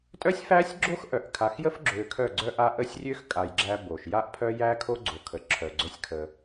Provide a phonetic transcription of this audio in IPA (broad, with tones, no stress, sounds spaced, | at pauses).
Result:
tʼ œ˦ sʲ f æ˦ sʲ ɡ͡ǁ o˦ x ʔ œ˨ ʔ kʰ a˨ x j ə˦ f ɡ͡ǁ ø˨ kʰ œ˦˨ ɡ͡ǀ œ˦ ʔ a˦ ʔ ə˦˨ sʲ rʲ ø˦ x kʼ a˨ j ɡ͡ǁ æ˦ b o˨ ʃ j a˦ ʔ pʰ œ˦ j æ˦ kʰ o˦ ɡ͡ǀ o˨ kʰ ə˨ ǁʰ œ˨ ɡ͡ǀ œ˦ sʲ kʰ ə˦